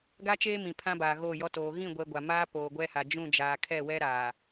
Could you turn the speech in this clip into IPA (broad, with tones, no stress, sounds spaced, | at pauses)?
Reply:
ɡ a˦ t͡ʃ eː˦ m ĩ˨ pʰ ã˦ b aː˨ ɣ oː˦˨ j ɔ˦ t oː˨ ɣ ĩ˦˨ ɡʷ ɛ˨ ɡʷ a˨ m aː˦ p oː˨ ɡʷ ɛ˦ h a˨ d͡ʒ ũ˦˨ d͡ʒ aː˨ kʰ ɛ˦˨ w ɛ˦ ɾ aː˨